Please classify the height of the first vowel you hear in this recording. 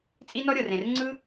high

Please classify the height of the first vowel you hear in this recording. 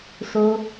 mid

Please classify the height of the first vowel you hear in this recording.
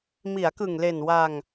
high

